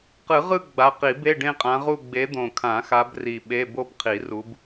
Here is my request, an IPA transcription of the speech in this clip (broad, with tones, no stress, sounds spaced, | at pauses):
q ɯ˨˩˦ ʁ ɯ˥˧ ɡ͡b a˨˦ q i˨˩˦ b e˧˥˧ ɖ ẽ˥˧ qʼ ã˨˦ ʁ u˥˧ ɡ͡b e˨˦ d̪ õ˨˩ kʰ ã˨˩˦ x a˨˦ b r i˨˩ ɓ e˧˥˧ b o˥˧ b qʰ i˨˩˦ r u˨˦ b